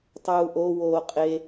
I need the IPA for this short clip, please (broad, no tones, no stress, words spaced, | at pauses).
tˤuːʔo woːqʼe